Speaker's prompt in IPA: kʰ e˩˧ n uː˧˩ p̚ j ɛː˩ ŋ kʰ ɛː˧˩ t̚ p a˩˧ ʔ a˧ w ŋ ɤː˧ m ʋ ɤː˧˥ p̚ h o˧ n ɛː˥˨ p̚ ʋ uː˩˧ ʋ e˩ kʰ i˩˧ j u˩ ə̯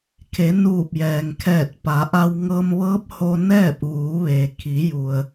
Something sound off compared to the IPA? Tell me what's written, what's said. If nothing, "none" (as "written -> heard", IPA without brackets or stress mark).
none